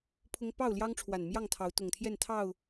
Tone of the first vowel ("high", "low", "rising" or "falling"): high